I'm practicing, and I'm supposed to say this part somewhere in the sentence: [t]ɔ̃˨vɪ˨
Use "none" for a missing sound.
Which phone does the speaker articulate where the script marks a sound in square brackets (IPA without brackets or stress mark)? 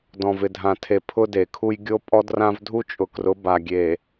d